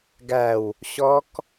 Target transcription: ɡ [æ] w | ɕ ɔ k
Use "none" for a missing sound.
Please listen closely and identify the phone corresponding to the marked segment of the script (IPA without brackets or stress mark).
æ